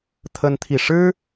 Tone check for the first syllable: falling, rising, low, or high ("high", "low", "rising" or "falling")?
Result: high